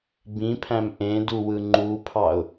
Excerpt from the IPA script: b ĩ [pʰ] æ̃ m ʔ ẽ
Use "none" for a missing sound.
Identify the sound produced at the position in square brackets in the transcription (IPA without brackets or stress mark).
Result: pʰ